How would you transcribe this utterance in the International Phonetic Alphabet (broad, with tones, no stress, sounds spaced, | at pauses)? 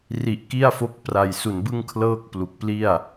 r i˨˩ ʔ k i˥˩ a̯ f o˦˥ k̚ p r a˨˩ j s u˨˩ n b ɯ˥˩ ŋ kʰ l ɤː˥˩ k̚ p l u˨˩ k̚ p l i˥˩ a̯